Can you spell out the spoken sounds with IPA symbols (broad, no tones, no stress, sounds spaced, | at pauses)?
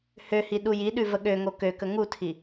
h ø h i ɗ u j i ɗ ʉ v ə ɠ ø ŋ o k ø k ə ŋ u tʰ i